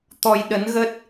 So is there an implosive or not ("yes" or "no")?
yes